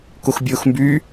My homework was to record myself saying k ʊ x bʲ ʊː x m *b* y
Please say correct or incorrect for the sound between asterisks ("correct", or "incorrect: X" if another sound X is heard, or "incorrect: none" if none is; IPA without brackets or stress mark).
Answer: correct